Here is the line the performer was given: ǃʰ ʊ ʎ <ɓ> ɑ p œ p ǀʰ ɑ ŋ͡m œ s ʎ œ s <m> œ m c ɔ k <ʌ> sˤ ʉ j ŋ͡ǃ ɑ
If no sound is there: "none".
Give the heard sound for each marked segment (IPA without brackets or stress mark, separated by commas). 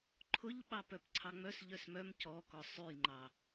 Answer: ɓ, m, ɔ